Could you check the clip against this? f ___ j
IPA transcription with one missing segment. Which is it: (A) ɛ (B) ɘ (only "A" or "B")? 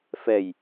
A